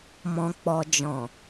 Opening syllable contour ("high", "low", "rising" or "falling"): low